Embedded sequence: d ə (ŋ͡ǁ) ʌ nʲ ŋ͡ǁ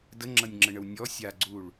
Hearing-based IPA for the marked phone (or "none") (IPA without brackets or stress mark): ŋ͡ǁ